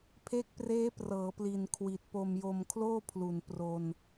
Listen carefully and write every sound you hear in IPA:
pʰ e˦˥ k̚ p r eː˦˥ p r ɤː˩˦ p l i˨˩ n kʰ w i˨˩ t̚ p o˧ m j o˧ m kʰ l oː˥˩ pʰ l u˨˩ n p r o˧ n

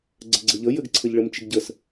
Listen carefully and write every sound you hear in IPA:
ɡ͡ǀ ɘ ɡ͡ǀ ɘ ʎ ə j ɘ ɡ ǀʰ ɘ ʎ ɭ ɘ m t͡ʃ ɪ ɡ ɟ ə s

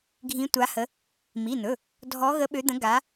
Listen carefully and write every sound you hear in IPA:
ɡʱ ĩ˨˦ tʷ a˨˦ h ə˨˦ | m i˩˧˩ n̪ ɵ˩˧˩ | dʱ ɔ˨˦ ɣ ə˨˦ ɓ ø˨˦ d̪ ə̃˨˦ ɡ a˨˦

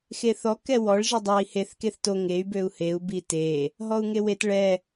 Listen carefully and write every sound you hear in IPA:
x e θ ɔ k ɛ w ɔ ɭ ʒ i dˤ ɑ i̯ h e θ k e θ t o ŋ e y̯ b ø u̯ h e u̯ b i t e | ɦ ɔ u̯ ŋ e w e t ɭ ɛ

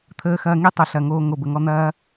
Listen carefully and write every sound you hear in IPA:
t̪ʰ əː˧ x ɐː˧ ŋ i˦ tˤ o˨ ɬ ɐ˨ ŋ oː˧ ŋ o˨ b ə˨ ŋ ɔ˧ n̪ ɐː˦

